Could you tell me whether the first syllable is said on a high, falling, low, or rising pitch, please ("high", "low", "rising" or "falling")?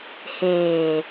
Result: low